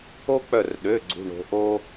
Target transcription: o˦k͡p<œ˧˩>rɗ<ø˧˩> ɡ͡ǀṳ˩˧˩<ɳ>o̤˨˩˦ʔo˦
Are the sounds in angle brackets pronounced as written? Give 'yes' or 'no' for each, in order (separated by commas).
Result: yes, no, yes